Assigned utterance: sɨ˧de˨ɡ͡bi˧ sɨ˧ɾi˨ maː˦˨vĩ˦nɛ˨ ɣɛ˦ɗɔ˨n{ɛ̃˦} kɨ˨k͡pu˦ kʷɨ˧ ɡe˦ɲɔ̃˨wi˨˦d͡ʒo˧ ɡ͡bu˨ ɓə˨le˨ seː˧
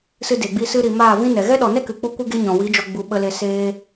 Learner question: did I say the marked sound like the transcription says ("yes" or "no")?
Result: no